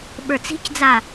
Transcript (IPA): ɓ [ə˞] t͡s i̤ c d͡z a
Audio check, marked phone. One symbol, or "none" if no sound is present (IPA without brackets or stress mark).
ə˞